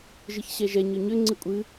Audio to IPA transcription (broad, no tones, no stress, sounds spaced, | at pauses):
ʒ ɨ ç ɕ ɛ ʒ ɛ ɲ ɵ ɲ ʏ ŋ͡ǀ ɨ kʷʼ ɨ